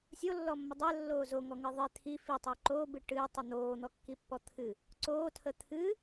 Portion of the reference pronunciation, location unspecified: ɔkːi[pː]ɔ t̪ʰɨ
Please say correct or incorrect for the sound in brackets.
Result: correct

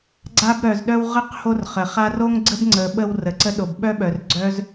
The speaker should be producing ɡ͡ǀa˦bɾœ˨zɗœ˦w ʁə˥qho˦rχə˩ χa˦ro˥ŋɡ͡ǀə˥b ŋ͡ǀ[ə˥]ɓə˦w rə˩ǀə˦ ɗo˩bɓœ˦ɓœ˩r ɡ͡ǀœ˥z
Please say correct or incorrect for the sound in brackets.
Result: incorrect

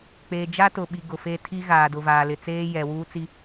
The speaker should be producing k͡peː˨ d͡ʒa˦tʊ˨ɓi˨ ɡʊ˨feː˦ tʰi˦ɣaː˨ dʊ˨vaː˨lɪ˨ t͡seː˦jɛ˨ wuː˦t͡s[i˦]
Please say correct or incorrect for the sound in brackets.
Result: correct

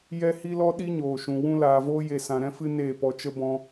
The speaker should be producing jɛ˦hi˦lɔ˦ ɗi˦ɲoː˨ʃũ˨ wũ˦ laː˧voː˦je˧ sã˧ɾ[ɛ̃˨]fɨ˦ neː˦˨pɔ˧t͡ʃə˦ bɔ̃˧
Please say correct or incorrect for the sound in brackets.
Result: incorrect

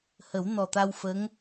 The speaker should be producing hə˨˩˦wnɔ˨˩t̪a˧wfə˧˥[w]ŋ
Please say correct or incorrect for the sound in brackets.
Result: incorrect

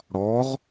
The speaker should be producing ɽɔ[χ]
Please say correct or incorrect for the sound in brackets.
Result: incorrect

